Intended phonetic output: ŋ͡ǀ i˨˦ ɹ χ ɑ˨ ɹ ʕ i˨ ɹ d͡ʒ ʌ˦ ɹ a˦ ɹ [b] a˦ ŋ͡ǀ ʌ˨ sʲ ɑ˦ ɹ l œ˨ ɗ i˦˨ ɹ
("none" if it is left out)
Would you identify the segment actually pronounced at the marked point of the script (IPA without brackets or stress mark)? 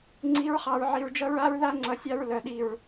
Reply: ð